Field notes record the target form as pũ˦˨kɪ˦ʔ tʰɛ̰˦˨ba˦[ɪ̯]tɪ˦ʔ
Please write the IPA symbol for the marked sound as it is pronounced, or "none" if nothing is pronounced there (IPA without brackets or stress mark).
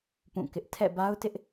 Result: ʊ̯